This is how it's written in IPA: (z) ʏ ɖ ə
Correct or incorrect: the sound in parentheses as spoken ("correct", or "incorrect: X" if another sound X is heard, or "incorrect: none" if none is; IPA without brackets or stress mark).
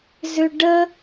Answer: correct